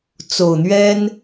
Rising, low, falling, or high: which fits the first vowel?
low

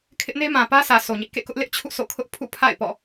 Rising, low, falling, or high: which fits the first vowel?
high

